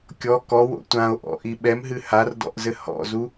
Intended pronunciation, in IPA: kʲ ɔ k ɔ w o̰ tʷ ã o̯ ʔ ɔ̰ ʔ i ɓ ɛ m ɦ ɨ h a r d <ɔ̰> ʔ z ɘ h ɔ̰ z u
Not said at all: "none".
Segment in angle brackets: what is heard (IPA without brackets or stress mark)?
ɔ̰